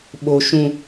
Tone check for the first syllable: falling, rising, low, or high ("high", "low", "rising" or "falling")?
high